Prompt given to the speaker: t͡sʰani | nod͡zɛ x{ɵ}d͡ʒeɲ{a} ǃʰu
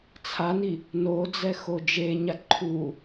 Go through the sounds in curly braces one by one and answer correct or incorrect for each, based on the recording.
incorrect: o, correct

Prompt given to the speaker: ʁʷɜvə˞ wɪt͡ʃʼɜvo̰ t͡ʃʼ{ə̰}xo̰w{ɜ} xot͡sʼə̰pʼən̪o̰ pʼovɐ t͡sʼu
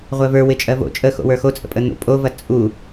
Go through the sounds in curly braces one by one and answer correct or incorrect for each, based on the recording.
incorrect: ə, incorrect: ə˞

